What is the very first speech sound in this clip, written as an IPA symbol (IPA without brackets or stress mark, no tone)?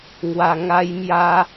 ŋ